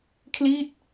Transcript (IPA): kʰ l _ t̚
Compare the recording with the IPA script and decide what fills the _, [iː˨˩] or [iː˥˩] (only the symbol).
iː˥˩